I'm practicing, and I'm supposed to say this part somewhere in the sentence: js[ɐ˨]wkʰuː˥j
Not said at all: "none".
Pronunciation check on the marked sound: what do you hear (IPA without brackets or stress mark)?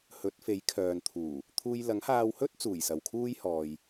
ɐ˨